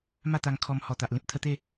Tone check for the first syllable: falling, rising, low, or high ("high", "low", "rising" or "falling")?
falling